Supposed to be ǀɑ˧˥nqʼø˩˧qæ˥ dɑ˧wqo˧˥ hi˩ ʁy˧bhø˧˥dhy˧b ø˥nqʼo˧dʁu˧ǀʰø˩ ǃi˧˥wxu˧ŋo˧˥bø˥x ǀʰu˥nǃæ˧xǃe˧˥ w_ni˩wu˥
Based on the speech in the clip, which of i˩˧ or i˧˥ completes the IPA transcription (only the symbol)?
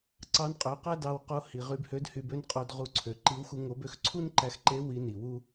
i˧˥